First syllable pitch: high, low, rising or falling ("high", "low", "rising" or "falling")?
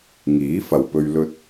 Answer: rising